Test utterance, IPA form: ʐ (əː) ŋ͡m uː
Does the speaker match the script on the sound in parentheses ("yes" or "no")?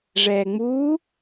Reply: no